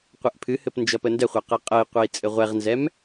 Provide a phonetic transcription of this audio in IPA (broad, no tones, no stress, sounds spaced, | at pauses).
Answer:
qʷ ɛ ʔ pʰ ɨ h ɘ p n d͡ʒ ʌ p ə n d ɛ χʷ a q ɤ qʼ ə i̯ qʷ ɤ i̯ t͡sʼ ɘ ʁʷ ɛ ʁ n z ɛ m